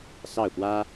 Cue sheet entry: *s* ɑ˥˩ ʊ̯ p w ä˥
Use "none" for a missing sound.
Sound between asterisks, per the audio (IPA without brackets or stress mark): s